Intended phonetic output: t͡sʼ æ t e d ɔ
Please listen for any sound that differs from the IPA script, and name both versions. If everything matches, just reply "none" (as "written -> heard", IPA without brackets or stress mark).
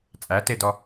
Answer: none